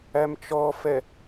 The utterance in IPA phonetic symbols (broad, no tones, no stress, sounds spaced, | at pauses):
æ m t͡ʃ ɔ f ɛ